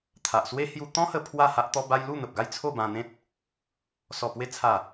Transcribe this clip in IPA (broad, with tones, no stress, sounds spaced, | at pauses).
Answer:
t̪ʰ a˨ ʔ s w e˦ h j u˧ t̪ ɔ̃˦ h ə˧ pʰ w a˥˧ h a˦ ʔ t̪ ɔ˦ b a˦ j l u˥˧ n̪ ə˨ p̚ ɡ a˥˧ j t͡sʰ o˥˧ b ã˧ n̪ ẽ˦ t̚ | s ɔ˨˩ p w e˧ t͡sʰ a˨˩